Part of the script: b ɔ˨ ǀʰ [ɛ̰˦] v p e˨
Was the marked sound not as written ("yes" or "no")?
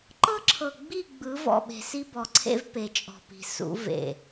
yes